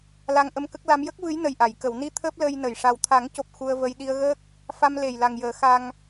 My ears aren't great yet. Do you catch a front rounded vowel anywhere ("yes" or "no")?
no